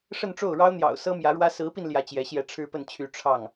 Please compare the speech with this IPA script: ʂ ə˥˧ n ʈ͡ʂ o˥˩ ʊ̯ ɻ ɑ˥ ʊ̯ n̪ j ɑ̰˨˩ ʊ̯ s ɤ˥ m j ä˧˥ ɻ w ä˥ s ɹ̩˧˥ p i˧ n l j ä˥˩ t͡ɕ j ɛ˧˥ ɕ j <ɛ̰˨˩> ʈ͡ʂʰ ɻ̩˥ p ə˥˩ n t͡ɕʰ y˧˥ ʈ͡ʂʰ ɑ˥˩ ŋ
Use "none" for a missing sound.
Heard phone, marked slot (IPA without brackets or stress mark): ɛ˥˩